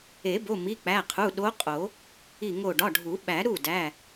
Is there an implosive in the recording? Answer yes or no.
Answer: yes